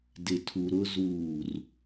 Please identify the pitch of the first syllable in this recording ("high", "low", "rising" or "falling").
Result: low